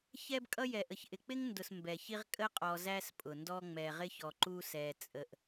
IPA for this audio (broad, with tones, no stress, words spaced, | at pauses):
çɛ˦bkʼʌ˦ jɛ˨ʔə˨çʔɪ˨ k͡pɪ˦ŋndʊ˨s mbɛ˨çi˦ʁ kʼə˦qʼɔ˨ zæ˦spʼʊ˨ndɔ˦ ŋ͡mɛ˨ ʁɪ˦çɔ˨ ǃu˦sɛ˨ t͡sʼə˨ʔ